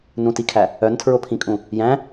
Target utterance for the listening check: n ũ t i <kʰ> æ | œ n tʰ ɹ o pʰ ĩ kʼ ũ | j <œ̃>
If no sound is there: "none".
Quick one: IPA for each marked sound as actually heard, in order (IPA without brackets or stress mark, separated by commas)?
kʰ, æ̃